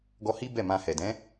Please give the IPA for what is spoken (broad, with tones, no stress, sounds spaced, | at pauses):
ɡ ɔ˧ h i˦ b ɛ˦˨ m ã˧ h ɛ˨ d ɛ̃˨˦